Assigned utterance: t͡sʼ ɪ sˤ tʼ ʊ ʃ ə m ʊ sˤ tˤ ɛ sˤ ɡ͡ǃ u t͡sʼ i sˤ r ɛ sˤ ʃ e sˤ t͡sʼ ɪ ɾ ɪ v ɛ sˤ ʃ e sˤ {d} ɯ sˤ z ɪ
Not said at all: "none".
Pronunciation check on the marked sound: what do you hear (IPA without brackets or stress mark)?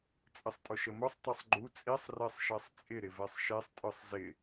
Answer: tʼ